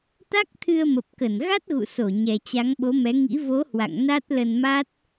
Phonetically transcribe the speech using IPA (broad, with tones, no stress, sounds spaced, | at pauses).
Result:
t̪ a˦˥ k̚ t̪ʰ ɨ˧ ə̯ m ə˨˩ p̚ k ə˧˩ n ɣ a˦˥ t̚ ɣ ṵ˧˨ s o˧˩ ɲ ɛ˨˩ t͡ɕ a˨˦ ŋ ɓ o˨˦ m ɛ˨˦ ŋ ḭ˧˥ v o˨˦ h w a̰˧˨ ŋ n a˦˥ t̚ l ə˧ n m a˦˥ t̚